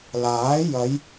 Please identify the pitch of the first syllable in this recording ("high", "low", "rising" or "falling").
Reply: rising